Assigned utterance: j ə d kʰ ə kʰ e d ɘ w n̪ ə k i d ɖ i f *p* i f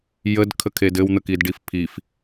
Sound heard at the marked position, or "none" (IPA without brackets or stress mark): pʰ